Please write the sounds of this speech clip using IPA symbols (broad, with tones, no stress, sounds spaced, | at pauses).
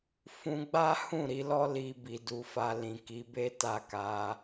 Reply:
f ũ˧ ɡ͡b a˦ h ũ˦˨ ɾ i˧ l ɔ˦ l i˧ b i˨ d u˨˦ f a˧ l ĩ˨ k i˨˦ b e˦ t a˦˨ k a˧